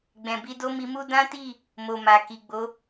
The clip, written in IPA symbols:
ɡ͡bɛ̃˨bi˧do˦ mi˧mu˦ dã˦ti˦˨ | mo˨ma˨ki˨ɡ͡bo˨˦

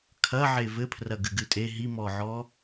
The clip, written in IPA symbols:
kʰɐʕe vɘpʰrɐɡɨ ɡɨtʼe ɦimɔʕɔ

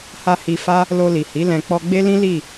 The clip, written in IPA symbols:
ha˧ hi˧fa˦ | lo˧li˨hi˨˦ lɛ̃˧ k͡pɔ˧ɡ͡be˦lĩ˦ li˦˨

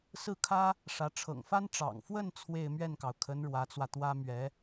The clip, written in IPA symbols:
sɹ̩˥˩kʰä˥ | ʂä˧˥ ʈ͡ʂʰɤ̰˨˩ŋfa˥n ʈ͡ʂɑ̰˨˩ŋfwə˥˧n t͡sʰwe˥˧ɪ̯ mɥɛ˥˩nkɑ˩ʊ̯kʰə˧˥n ɻwä˧˥t͡swä˧t̪wä˥ mɥɛ˧˥

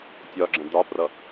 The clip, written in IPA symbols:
tʲɒɡ͡ǁə̃ dɒprʌ

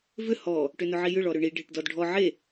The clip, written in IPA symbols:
vʏ hɔ | ʈʏnʊʕijʏɭ ɔɾʏɳi ɖʱeʈdɔdɖʱɔ ʕe

